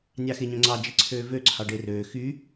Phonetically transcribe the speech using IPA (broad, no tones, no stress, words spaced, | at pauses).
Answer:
nʲɑxeɲœ̃ŋ͡ǀɑ d͡ʒiǀʰøːvø ǀʰɑɖerøː xy